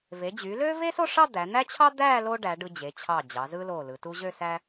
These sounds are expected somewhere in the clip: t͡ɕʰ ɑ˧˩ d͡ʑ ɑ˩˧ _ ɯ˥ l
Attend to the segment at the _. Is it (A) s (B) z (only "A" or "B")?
B